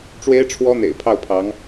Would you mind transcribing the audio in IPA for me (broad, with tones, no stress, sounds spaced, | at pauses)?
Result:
ʈ͡ʂ w e˥ ɪ̯ ʈ͡ʂʰ w ɔ˥ n̪ ḛ˨˩ ɪ̯ pʰ ɑ˥˩ ʊ̯ pʰ ɑ˧˥ ŋ